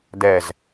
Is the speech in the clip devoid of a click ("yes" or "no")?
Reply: yes